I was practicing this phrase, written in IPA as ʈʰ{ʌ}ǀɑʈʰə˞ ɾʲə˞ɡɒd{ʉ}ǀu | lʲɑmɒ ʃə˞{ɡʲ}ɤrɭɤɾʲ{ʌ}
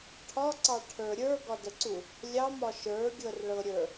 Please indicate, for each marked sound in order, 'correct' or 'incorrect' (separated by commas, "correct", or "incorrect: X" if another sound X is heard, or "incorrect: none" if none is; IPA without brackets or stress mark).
incorrect: ɒ, incorrect: ə, correct, incorrect: ə˞